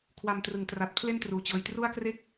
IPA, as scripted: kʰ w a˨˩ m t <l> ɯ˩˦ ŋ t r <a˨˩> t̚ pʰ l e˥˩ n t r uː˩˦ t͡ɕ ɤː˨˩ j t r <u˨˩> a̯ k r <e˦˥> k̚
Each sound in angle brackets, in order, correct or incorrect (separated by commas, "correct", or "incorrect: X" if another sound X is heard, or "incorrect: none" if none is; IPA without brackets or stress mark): incorrect: r, correct, incorrect: u˥˩, correct